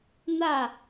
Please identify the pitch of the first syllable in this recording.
falling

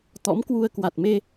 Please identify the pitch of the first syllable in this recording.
rising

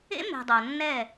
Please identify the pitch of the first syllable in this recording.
high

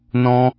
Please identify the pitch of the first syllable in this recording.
high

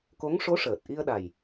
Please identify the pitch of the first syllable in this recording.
rising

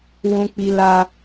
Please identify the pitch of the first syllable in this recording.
low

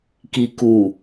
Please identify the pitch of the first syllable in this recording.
low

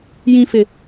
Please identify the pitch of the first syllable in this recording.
high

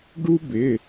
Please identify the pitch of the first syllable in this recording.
high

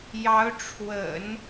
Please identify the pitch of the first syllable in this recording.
rising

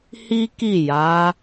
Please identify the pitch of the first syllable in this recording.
high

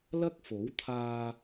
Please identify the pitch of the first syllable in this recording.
high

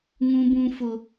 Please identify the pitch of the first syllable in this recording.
high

